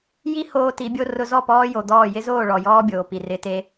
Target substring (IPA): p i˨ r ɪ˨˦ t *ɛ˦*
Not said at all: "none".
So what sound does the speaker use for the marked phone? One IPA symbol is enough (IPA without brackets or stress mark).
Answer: e˦